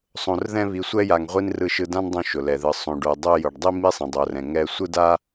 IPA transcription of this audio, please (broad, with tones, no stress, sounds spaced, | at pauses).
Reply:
sˤ õ˧ r ð ɛ̃˥ β i˧ sʷ ɛ˥ j a˧ ŋ ʁʷ i˥ n r ɯ˧ ʃ ɯ˧ d ã˥ n dˤ õ˧ ʃ ʊ˩ l ɛ˩ ð ɯ˩ sˤ õ˩ ɖ o˩ dˤ o˧ j ʊ˩ ɖ dˤ i˥ m i˥ sˤ ɛ̃˩ dˤ o˩ r ɛ̃˩ ŋ ɛ˧ sʷ ɯ˥ d a˥